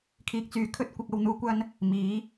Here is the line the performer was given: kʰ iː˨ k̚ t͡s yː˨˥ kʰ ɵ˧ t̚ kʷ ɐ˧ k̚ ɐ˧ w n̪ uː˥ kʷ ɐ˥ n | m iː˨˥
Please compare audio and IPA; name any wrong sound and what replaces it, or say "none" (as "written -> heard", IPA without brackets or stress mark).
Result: none